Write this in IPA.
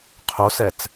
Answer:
qʰ o s ɛ t͡s

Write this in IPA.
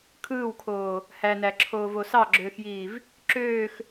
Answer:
kʰ ɯː w kʰ oː | h æ n æ ǁʰ oː v o s ɑ ɡ͡ǁ øː x j iː v | ǁ øː x

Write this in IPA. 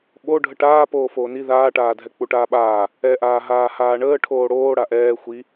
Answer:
ɓ o ɖʱ ə ʈ aː p oː f oː n i ð aː ʈ aː dʱ ɛ k͡p u ʈ aː ɓ aː | ɛ ʔ aː ɦ aː h aː ɳ əː ʈʰ oː ɽ oː ɽ a ʔ ɛː xʷ i

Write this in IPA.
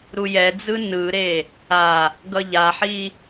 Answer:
ɾ u j ɛ d͡z ɯ n ɯ ɾ e | a | ɡ ʌ ʎ a ħ i

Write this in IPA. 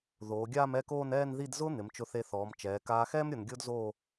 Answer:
ð oː˩˧ ɡʲ aː˥˧ m ɛ˥˧ k oː˥˧ n ɛː˥˧ n ð i˥˧ d z ʊː˥ n̪ ɪ˩˧ m t͡ʃ ʊ˧ θ e˧ θ ɔː˩˧ m t͡ʃ ɛː˩˧ k aː˧ x ɛː˥ m ɾʲ ʊ˧ n ɡʲ ʊː˥ d z oː˥˧

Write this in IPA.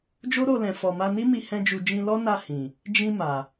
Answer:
d͡ʒ o˦ ɾ o˧ l ɛ̃˨ f ɔ˨ m a˧ n i˦ m i˧ h ɛ̃˧ d͡ʒ u˨ d͡ʒ ĩ˧ l ɔ˦ n a˦˨ h ĩ˨ | d͡ʒ ĩ˧ m a˨

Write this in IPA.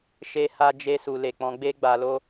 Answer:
ʃ e˦ h a˦ d͡ʒ e˦ s u˧ l e˨ k͡p ɔ̃˧ ɡ͡b e˦ ɡ͡b a˧ l o˦

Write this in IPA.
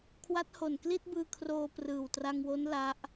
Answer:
kʰ w a˦˥ t̚ h o˨˩ n k l i˥˩ t̚ b ɯː˧ kʰ r oː˧ p r ɯː˨˩ w t r a˧ ŋ w o˦˥ n l a˦˥ ʔ

